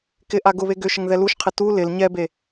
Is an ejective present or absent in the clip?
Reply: absent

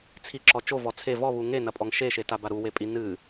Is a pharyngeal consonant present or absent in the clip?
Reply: absent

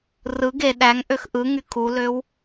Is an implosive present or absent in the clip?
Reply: present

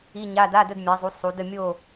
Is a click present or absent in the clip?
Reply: absent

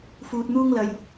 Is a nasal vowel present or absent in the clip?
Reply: absent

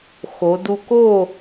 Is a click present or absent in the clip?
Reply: absent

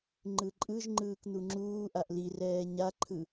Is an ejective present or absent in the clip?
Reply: present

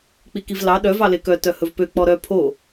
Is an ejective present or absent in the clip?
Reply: absent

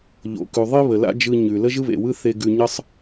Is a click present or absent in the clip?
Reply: absent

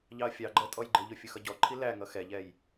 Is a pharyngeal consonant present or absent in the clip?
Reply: absent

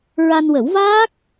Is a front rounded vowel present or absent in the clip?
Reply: absent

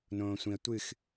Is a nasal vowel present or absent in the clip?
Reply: present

